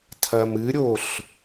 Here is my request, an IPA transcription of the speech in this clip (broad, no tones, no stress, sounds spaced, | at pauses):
tʰ ɐ m ɨ ɾʲ o ɬ